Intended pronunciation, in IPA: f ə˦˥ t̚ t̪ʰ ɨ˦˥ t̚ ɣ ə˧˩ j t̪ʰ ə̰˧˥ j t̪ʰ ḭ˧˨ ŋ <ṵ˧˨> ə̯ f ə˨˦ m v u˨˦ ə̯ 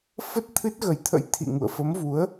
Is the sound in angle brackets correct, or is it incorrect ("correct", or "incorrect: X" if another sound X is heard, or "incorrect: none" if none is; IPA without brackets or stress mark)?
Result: correct